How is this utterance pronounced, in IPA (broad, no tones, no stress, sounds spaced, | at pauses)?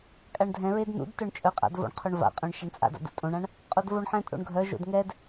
kʼ a ɳ dʱ ɛ̃ ɹ e d n ṵ d t œ ɳ t͡ʃʼ œ qʼ a̰ d v o̰ ɳ qʰ o ɳ v a̰ qʼ õ ɳ ʃ e ɳ t͡sʼ a̰ d a̰ d ṵ tʼ õ ɳ ã ɳ | qʼ o d v o ɳ ħ ɛ̃ tʼ o̰ ɳ ɡʱ œ ʒ o̰ d ŋ ɛ d